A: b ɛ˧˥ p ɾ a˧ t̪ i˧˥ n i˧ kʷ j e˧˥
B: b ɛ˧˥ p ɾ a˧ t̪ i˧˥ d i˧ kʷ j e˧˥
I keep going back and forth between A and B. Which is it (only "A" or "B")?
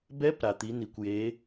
A